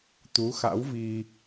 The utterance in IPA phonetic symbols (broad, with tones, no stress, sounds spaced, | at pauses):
t̪ u˨˦ x a̰˧˥ w v i˧